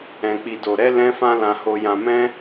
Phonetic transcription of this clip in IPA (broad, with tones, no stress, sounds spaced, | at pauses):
ɛ̃˨ k͡p i˨ d o˨ ɾ ɛ˧ l ɛ̃˦ f ã˦ l ã˧ h o˧ j ã˧ m ɛ̃˦